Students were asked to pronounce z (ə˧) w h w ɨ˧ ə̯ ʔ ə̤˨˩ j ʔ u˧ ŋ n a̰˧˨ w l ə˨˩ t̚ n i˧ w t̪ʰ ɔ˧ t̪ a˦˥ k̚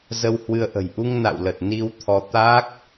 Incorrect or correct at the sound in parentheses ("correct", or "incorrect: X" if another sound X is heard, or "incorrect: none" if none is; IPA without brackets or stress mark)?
correct